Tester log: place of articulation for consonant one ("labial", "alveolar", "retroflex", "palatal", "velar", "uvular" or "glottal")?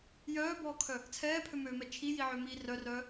palatal